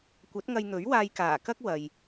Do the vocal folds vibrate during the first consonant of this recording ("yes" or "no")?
no